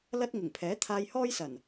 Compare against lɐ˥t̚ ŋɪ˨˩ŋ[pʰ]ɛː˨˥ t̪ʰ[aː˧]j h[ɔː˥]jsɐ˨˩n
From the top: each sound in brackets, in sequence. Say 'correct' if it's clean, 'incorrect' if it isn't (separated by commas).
correct, correct, correct